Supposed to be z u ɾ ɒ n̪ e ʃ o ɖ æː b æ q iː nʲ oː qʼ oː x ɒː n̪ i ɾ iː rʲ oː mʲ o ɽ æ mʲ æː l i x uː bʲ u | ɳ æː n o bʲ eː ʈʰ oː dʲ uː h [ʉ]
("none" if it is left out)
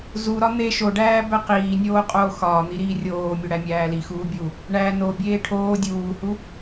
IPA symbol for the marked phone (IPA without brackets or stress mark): u